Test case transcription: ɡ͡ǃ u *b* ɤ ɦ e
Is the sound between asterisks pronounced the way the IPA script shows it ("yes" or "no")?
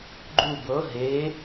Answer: yes